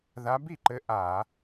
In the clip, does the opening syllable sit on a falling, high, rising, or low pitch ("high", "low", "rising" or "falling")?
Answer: rising